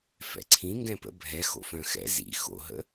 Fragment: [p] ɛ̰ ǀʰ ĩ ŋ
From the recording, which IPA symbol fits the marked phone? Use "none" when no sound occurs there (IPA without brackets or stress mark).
f